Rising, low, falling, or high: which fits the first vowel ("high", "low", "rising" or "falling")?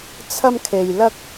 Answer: high